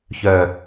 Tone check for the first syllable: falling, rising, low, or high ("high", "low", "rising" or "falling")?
low